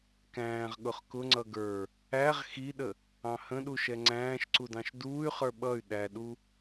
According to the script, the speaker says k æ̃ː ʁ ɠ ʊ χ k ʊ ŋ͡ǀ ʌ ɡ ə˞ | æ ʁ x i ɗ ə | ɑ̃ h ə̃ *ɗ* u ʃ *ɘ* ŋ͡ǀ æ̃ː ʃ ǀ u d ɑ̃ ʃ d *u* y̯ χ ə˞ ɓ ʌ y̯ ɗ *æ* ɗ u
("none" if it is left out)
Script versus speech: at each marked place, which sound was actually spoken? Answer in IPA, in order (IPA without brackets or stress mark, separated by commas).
ɗ, ɛ, uː, æ